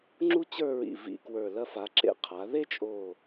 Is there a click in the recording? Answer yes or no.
yes